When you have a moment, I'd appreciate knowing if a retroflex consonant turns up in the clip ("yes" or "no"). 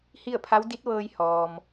no